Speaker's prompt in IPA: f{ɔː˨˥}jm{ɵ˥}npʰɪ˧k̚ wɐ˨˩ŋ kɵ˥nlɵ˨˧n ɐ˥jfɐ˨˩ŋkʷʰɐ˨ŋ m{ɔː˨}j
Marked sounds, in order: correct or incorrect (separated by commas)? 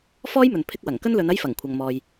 incorrect, incorrect, correct